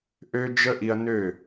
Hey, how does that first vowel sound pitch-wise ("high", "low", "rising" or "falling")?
high